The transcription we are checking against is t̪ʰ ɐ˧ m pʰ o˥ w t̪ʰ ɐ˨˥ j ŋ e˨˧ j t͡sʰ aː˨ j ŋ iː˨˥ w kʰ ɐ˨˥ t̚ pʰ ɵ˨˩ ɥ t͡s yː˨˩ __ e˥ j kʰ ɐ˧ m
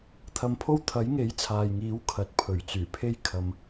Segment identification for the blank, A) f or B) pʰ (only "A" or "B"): B